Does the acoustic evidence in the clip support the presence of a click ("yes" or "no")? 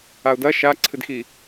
yes